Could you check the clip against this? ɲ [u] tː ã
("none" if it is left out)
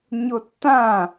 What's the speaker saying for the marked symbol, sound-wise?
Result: o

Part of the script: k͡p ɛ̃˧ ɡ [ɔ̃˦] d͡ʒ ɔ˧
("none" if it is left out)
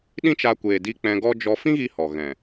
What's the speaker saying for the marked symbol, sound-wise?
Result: ɔ˦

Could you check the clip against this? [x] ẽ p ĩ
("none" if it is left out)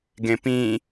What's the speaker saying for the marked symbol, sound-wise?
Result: ɡ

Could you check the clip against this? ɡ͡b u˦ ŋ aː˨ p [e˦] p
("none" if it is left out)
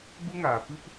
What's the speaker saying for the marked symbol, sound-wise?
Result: ɨ˦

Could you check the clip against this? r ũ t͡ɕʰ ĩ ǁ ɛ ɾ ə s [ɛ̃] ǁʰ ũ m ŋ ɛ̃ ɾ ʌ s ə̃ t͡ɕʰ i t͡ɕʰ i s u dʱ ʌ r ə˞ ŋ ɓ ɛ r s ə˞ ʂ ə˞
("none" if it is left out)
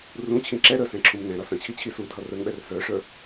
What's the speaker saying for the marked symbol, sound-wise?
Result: ɛ̃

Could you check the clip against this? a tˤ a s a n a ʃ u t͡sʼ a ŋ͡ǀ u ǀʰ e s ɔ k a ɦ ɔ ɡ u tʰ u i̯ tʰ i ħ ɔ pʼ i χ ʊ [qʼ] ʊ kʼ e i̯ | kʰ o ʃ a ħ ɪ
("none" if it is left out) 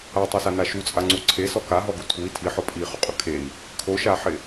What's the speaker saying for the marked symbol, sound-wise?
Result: qʼ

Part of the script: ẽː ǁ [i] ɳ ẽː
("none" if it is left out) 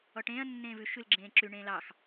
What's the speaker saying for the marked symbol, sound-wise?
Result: y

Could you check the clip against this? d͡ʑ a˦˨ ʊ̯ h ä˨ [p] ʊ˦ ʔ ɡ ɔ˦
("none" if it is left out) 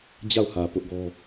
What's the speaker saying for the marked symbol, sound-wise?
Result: p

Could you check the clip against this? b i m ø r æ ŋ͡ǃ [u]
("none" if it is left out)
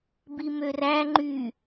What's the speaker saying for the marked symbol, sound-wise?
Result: y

